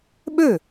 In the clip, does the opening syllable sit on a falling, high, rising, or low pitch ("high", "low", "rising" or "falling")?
falling